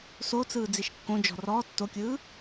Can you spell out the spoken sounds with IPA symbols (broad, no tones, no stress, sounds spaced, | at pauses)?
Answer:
s o t͡s ɯː d͡z i ʃ kː õ d͡ʒ ɔ̤ r ɔː tː o kʲ ɯː